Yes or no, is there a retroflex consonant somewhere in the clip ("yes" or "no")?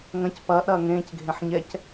no